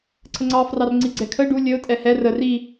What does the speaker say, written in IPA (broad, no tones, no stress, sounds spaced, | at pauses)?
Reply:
ǀʰ ə ŋ͡ǀ ɑ f r ɑ r ŋ͡ǀ i ɡ͡ǀ ɛ kʰ ə ɖ u lʲ ə ʊ̯ tʼ ɛ h ɛ r ə r i